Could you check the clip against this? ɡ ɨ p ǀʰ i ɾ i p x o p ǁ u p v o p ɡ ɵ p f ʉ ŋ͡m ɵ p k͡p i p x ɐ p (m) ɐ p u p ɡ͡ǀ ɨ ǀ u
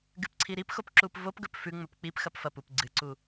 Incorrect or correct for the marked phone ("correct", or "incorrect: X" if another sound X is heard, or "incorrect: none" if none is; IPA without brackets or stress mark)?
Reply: incorrect: f